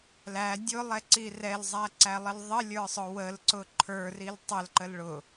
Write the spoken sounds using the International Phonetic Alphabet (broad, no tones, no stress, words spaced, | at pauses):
læ dʲʊlˠɛǀi rɛlzˤæǀælˠəl ðˤəlʲə˞sˤʊ wəlǀʊ ǃʰə˞ril tˤəlǃəl ɭʊ